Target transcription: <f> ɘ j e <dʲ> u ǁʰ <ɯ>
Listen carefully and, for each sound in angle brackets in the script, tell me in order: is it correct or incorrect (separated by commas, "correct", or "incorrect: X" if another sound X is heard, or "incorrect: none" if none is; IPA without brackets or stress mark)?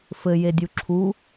correct, correct, incorrect: u